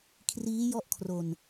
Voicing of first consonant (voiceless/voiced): voiceless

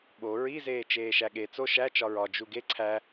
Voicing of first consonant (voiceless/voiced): voiced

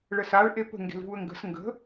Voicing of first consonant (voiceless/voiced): voiced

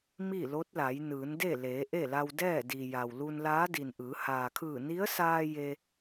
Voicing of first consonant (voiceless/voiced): voiced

